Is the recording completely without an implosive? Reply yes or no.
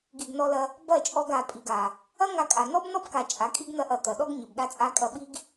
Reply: no